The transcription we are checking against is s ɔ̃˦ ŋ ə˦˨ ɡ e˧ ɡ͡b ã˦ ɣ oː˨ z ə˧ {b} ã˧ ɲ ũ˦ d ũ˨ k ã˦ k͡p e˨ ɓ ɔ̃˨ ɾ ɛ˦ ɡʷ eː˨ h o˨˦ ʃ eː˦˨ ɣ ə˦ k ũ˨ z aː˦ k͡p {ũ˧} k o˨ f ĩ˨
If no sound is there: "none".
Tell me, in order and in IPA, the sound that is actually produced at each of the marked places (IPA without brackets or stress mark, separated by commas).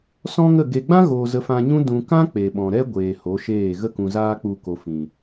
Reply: f, u˧